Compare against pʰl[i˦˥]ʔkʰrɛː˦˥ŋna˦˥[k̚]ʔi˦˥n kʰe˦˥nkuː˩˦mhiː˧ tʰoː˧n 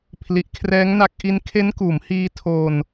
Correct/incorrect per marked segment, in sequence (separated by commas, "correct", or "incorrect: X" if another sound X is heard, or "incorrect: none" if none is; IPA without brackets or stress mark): incorrect: i˨˩, correct